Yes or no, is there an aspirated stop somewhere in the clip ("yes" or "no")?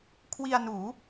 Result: yes